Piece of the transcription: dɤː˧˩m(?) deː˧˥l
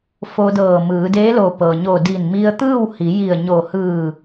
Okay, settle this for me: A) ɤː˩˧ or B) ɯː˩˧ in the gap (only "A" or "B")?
B